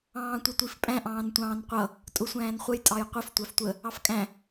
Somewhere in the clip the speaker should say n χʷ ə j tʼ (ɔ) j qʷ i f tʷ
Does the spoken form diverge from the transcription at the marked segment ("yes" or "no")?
yes